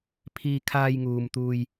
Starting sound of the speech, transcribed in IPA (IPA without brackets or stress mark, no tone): pʰ